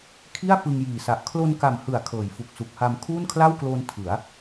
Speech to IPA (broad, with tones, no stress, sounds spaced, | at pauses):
kʰ i˥˩ a̯ f ɯ˧ ŋ j iː˨˩ s a˨˩ ʔ kʰ l o˧ n k a˨˩ m h ɯ˩˦ a̯ kʰ ɤː˩˦ j f u˨˩ k̚ s u˨˩ k̚ h a˧ m kʰ uː˥˩ n kʰ l a˥˩ w k l oː˧ n tʰ ɯ˩˦ a̯